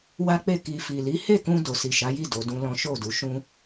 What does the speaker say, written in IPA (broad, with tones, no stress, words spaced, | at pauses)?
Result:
wa˦k͡pe˦˨ ki˨fi˨li˨˦ he˦˨kũ˧ do˨si˨ʃa˨˦ji˦˨ do˨˦dũ˦lɔ̃˦ ʃo˦˨du˨˦ʃũ˦